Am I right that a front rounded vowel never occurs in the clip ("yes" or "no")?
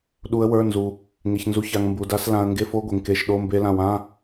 yes